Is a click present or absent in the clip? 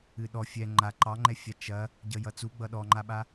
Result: present